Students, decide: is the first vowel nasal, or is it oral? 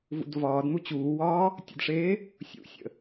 oral